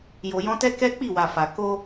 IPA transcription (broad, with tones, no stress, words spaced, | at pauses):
jo˨jɔ̃˧tɛ˦ kɛ˦k͡pi˦˨wa˨ fa˨ ko˧